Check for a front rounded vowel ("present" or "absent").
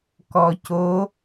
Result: absent